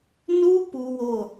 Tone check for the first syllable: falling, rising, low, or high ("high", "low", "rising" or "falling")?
high